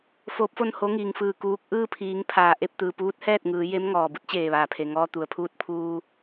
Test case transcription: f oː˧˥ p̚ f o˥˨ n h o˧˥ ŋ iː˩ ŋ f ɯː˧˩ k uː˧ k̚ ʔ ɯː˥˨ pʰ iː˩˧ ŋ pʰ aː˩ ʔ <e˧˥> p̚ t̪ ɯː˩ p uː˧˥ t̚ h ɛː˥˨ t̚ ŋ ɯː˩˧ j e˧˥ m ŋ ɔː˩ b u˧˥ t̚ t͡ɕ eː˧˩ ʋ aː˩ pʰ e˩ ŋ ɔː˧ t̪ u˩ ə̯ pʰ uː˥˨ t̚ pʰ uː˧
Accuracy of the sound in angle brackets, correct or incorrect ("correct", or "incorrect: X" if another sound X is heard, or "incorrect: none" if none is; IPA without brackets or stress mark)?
incorrect: e˥˨